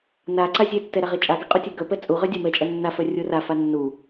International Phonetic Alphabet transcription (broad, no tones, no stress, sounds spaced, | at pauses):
n a ǀ a zʲ e tː ɛ ɾ a ʁ e t͡ʃʼ a ɡ ɛ qʼ u tʲ ɛ ɡ œ p ɛ t͡sʼ u ʁ œ dʲ a m ɛ t͡ʃʼ ɛ nː a f œ rʲ u r a f a nː u